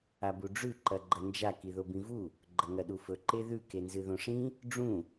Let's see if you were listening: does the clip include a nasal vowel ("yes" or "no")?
yes